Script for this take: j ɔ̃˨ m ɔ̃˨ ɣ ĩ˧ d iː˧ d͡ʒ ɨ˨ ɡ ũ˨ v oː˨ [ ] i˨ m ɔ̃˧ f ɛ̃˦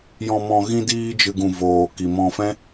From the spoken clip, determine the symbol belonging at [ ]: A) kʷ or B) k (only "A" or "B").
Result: B